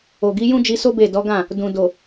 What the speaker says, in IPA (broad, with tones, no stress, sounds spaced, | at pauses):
o˨ ɡ i˨˦ j ũ˦ d͡ʒ i˧ s o˦ b e˦˨ d ɔ˨˦ ɡ ã˦˨ | d ũ˨ d o˨